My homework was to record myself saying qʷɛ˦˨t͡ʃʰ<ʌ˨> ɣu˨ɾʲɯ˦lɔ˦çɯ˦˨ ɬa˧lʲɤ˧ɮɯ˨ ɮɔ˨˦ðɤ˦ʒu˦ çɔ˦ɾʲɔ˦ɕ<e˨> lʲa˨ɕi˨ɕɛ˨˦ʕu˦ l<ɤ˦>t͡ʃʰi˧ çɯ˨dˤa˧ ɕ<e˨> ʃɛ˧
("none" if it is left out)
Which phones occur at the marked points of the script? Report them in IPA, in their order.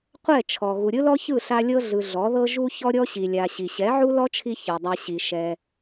ɔ˨, i˨, ɔ˦, i˨

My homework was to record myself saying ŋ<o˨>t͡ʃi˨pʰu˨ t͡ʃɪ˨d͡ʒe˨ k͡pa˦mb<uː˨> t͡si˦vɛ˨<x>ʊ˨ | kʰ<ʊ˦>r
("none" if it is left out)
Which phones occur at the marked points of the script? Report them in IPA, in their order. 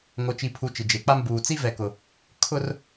o˨, uː˨, k, ʊ˦

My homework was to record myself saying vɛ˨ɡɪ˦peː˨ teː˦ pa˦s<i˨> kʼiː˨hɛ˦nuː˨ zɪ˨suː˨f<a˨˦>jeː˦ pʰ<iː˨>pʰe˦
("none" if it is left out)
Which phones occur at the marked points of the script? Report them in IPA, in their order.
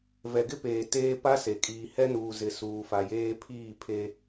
e˨, a˨, iː˦˨

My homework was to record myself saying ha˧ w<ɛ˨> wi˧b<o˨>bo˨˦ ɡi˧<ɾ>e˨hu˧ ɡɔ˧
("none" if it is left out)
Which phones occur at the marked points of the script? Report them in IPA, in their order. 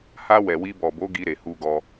ɛ˨, ɔ˨, ɾ

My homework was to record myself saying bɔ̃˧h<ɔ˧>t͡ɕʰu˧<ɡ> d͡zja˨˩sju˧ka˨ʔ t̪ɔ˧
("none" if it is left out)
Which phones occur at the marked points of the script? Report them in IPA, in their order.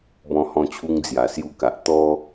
ɔ̃˧, ŋ

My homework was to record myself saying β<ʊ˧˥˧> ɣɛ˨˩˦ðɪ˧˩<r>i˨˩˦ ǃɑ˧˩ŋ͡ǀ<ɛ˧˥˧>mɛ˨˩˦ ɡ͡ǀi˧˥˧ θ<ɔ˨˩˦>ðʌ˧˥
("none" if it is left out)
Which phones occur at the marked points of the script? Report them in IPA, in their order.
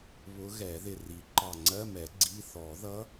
ʊ˧˥, r, ɜ˧˥˧, ɔ˨˩˦

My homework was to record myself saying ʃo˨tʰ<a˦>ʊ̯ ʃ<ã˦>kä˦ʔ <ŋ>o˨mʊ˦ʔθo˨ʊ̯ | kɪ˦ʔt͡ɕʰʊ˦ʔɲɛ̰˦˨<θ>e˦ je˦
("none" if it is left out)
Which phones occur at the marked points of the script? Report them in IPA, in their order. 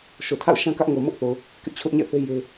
a̰˦˨, ã˦, ŋ, θ

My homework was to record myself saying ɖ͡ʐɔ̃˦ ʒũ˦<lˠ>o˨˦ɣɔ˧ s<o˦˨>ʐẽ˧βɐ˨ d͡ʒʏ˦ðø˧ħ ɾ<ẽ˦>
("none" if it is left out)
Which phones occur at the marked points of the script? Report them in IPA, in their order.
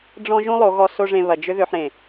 lˠ, o˦, ẽ˨

